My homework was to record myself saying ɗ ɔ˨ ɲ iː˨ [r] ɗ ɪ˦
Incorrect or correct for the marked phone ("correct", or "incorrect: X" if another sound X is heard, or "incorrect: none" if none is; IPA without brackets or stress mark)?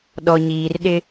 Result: correct